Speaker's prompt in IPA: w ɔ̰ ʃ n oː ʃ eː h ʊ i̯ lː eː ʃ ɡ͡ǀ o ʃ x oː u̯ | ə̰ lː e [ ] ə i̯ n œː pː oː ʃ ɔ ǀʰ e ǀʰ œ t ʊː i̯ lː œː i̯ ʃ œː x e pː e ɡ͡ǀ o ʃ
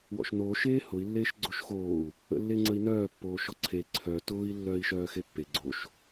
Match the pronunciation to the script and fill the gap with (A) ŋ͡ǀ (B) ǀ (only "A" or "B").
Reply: A